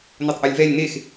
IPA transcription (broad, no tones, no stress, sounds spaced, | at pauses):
n o tˤ ʔ o lʲ v ɛ lʲ n e x